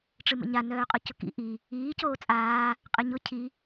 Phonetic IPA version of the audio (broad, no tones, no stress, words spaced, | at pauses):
ʈ͡ʂɨmə̰ɲa nœːqʼʊcʊkḭ ʔi | iː coːt͡sʼaː | qʼɨɲʊ cʰi